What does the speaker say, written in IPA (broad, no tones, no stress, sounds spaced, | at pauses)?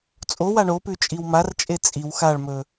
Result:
t͡sʼ o w a ɳ o p ʉ t͡ʃʼ i w m a r t͡ʃʼ e t͡sʼ i w x a ɭ m ɵ